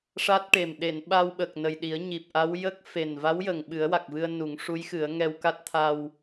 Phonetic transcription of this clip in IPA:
ʂ a˦˥ t̚ ʈ e˨˩ m ɗ e˨˩˨ n ɓ a˧ w ɓ ə˨˩ k̚ n ə˨˩ j ɗ i˨˩˦ ə̯ ɲ i˨˩ p̚ ʔ a˧˥ w j ə˦˥ k̚ f e˨˩ n v a˧˥ w j ə˨˩ ŋ ɓ ɨ˨˩˦ ə̯ w a˨˩ k̚ v ɨ˧ ə̯ n u˨˩˦ ŋ ʂ u˧˥ j x ɨ˨˩˦ ə̯ ŋ ɛ˧ w k a˦˥ t̚ t̪ʰ a˧ w

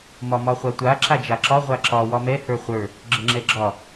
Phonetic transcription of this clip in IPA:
m ɒ m ɒ χʷ a tʷ a ǁ a d͡ʒ a ǁ ɒ ʁʷ a ǁ ɒ w ɒ m ɛ h ə˞ χʷ ə˞ | ɡ͡ǁ ə ŋ͡ǁ ɛ ɡ͡ǁ ɒ

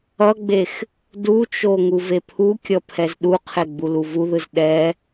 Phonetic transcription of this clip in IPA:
ʌ ɡ͡b e x | d u t͡ʃ o ŋ u v e pʰ u kʲ ʌ pʰ ɛ z ɗ u qʰ e ɡ͡b u l u v u ð ɯ z ɗ ɛ

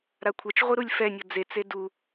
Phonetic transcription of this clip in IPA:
ɾ a kʷʰ ɛ t͡ʃ ʁʷ i ɾ u lʲ f ɛ nʲ ɤ d͡z e t͡s e d u

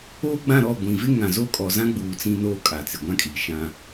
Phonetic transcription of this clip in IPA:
oː˦ ɡ͡b ã˦˨ ɾ ɔ˦˨ ɡʷ ĩ˨ v ɪ˦ ŋ ã˨ z o˦˨ kʼ ɔ˨ z ã˦ ɡ͡b uː˨ t͡s ĩ˦ n oː˦ kʼ a˨ t͡s ɪ˨ ɡʷ ã˦ kʼ iː˨ ʃ ã˦

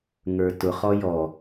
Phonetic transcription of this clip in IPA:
ŋ ə˞ t ʊ χ ɔ j ɔ

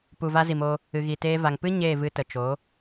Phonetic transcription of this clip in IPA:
p u˨ v a˧ z i˨ m o˧ | ɨ˨ ɣ i˨ t eː˧ v a˨ ŋ p ɨ˦ ɲ eː˦˨ v ɨ˧ t ə˨ t͡ʃ o˨˦

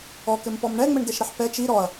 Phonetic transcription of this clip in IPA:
ɔ k ɘ m p ɔ m ɳ ɛ ŋ͡m ɘ ɳ d ɛ ʃ ɾ ɛ ħ p ɛ t͡ʃ i ɾ ɔ ɐ̯

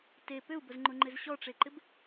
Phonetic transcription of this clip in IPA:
t e p ʏ u̯ b ʊ z ŋ͡ǃ ʊ ŋ͡ǃ ɪ z ɕ ɔ ʈ͡ʂ e ǃ ɪ b

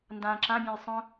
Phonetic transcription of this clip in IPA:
n d ã ǁ ã bʲ ɛ̃ j sˤ œ̃

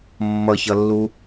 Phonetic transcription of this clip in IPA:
mː ʌ ç ʌ lː u

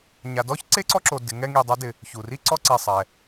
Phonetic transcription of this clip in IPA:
ɲ a˨ d ɔ˥ ç ǀ e˥ ǀ ɔ˦ ǁ o˨ d ɪ˨ ŋ ɛ˦ ŋ i˨ dˤ a˦ d ɪ˩ | ç u˩ r i˥ ǀ ɔ˥ ǀ e˨ sˤ ɛ˩

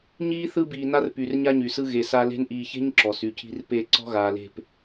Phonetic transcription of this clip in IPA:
ɲ iː˦ θ ɯ˦ b iː˨ n a˦ r p y˨ r ɲ a˦ ɲ y˨ s ɯ˦ ɣ e˨ s a˦ l e̤˦ n ʔ iː˨ ç e̤˦ ɲ ǁ ɔ˨ s y˨ cʰ i̤˦ r p e˦˨ ǀ ɔ̤˦ ɣ aː˨ l e̤˦˨ p

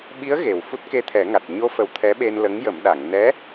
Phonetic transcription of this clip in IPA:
ɓ i˧˥ ə̯ ɣ e˨˩ w f u˦˥ t̚ k e˧ t̪ʰ ɛ˨˩˦ ŋ a˨˩ t̚ ɲ o˧ f ə˨˩˦ w t̪ʰ ɛ˧˥ ɓ e˧ n l ə˧˥ ŋ j ə˨˩˦ m ɗ a˨˩˨ ŋ n ɛ˧˥

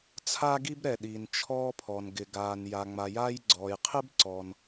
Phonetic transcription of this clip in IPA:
t͡sʰ aː˥ ɡ i˥ b ɾ ɛ˩ ɗ iː˩ n t͡ʃʰ ɔː˥ pʰ ɔ˩ n ɡ ɪ˩ ɡ aː˩ n j a˩ ŋ͡m a˩ j aː˥ j ɡ͡ǀ ɔː˩ j qʰ ɪ˥ b ǀ ɔ˩ n

